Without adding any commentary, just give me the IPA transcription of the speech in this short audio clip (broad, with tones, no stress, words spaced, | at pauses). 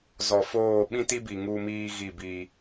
zɔ˨foː˦˨ ɓĩ˦ti˦bi˨ ŋu˦miː˦ ɣi˦˨biː˦